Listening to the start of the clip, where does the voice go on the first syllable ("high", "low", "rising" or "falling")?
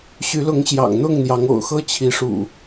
rising